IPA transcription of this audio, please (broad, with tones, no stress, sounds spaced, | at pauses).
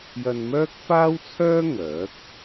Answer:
j ɐ˧ n m œː˥ k̚ f aː˥ w t͡sʰ œː˥ ŋ œː˨˥ k̚